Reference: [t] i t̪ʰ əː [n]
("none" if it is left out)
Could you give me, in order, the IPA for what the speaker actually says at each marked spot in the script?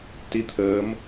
t, m

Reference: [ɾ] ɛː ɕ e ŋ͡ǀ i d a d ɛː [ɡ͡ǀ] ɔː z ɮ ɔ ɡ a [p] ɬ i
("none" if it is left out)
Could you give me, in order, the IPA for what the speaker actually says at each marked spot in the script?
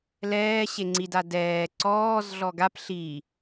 l, ǀ, p

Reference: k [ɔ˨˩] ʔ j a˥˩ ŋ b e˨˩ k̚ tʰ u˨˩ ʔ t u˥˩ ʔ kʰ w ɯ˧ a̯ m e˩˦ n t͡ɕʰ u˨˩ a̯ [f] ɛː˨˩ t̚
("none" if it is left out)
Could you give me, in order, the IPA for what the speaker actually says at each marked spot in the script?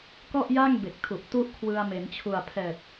ɔ˥˩, pʰ

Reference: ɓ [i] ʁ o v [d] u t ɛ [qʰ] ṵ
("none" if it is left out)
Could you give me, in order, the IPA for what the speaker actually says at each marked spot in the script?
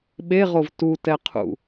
e, t, qʰ

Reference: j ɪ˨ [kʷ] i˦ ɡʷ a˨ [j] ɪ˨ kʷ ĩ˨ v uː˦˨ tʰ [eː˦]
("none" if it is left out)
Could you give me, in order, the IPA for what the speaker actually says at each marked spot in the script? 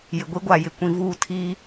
ɡʷ, j, iː˦

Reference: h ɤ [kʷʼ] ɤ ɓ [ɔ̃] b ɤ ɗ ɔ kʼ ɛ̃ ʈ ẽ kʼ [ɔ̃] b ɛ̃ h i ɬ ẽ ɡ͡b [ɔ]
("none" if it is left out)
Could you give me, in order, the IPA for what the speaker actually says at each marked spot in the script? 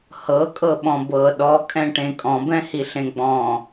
kʼ, ɔ̃, ɔ̃, ɔ̃

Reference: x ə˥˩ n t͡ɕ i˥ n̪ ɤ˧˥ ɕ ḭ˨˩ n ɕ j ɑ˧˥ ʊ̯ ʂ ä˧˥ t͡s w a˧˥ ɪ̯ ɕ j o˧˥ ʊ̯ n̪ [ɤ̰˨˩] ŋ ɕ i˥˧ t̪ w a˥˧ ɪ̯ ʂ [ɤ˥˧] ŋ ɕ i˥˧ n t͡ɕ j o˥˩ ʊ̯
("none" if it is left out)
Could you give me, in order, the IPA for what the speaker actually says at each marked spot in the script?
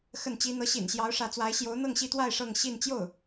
ɤ˥˧, ɤ˥˧

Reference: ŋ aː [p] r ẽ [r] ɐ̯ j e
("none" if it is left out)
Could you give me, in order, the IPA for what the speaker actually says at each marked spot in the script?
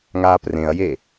p, none

